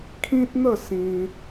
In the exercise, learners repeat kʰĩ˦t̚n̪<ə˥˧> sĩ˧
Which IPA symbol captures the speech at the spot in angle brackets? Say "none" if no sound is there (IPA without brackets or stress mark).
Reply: ə˥˧